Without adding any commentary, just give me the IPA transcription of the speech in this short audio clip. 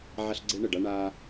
ʕa˦ɬɡ͡ǀe˦ɳə˨ɖa˦ ɳa˦

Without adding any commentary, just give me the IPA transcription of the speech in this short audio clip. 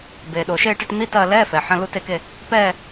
beː˩ ɗo˩ʃeː˦˨ʈe˦˨ʈ n̪i˧˥˧tɐː˦˨lɛː˧˥˧ fɛː˩ħɐ̃˧˥˧ lu˦˨te˦˨ke˦˨ | pɛː˦˨

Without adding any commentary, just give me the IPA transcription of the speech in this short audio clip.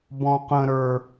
bɔ̃qə̃ɾə˞

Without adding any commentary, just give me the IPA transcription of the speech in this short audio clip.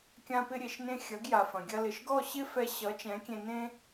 kʲã˧pɪ˧ɾʲe˨ʃnẽ˧ xʲɐ˨˦ɡja˨fɐ̃˨ ɡʲɐ˧lɪ˨ʃɡɔ˦˨ ɕɪ˦ fɛ˧ɕʌ˨˦ t͡ʃɛ̃˨˦kʲẽ˧ nẽ˦

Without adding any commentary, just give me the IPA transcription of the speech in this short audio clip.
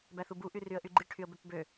bæθubu ʔyryə̯ʔyɡ͡ǃi ʈʰyə̯bøpbø

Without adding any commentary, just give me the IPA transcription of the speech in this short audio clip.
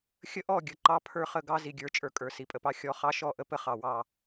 xʲə˦ʔɔ˦˨ɡʲə˨˦ ǃɑ˦pʰə˞˦χə˦˨ ɡɑ˦ zi˨ɡʲə˞˨˦t͡ʃʼə˞˨kʼə˞˨ si˨pʼə˨pɑ˦ xʲɔ˦ χɑ˦ʃɔ˦˨ʔə˦ pə˦χɑ˨wɑ˦˨

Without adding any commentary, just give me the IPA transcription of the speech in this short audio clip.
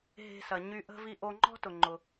ɦe̤˧sɐ˩ɲy˧ʔə̤˥ vi˧ʔo˧ŋ͡ǃɔ̤˥tʊ˩ ŋ͡ǃʊ˩

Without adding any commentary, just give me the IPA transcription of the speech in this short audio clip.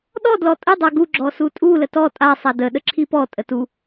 ɗɔ dlɔtʼə dˤaɡu ɡ͡ǁɔsutʼu lətɔ tʼa sˤadə ɗəǁʰipɔ tʼətu

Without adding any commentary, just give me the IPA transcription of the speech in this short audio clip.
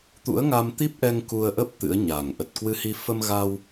t̪ṵ˧˥ə̯ŋa˧mt̪i˦˥p̚ʔɛ˧ŋ ku˧ə̯ʔə˦˥p̚ t̪ɨ̰˧˥ə̯ɲa˨˩ŋ ʔə˨˩t̚kwɨ˧hi˧ fə˧mɣa˧w

